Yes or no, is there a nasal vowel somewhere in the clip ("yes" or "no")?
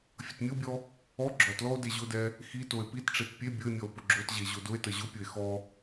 no